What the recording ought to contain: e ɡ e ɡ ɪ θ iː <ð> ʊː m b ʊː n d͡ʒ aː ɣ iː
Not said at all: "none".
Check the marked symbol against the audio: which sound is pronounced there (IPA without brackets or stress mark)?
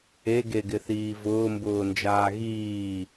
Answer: v